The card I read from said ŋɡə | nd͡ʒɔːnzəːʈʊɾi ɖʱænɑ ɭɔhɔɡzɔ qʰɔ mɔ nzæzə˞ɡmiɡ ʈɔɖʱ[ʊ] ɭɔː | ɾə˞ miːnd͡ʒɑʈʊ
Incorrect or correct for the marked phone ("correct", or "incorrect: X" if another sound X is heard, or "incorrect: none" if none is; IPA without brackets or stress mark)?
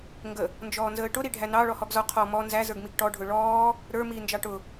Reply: correct